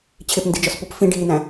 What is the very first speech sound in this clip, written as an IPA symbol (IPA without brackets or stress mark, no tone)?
t͡ɕʰ